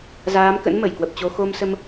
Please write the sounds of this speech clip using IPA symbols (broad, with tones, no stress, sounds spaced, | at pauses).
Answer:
z aː˨˦ m k ə̰˧˥ n m ə˧˩ j k w ə˨˩ p̚ t͡ɕ o˧ x o˧ m s ə˧ m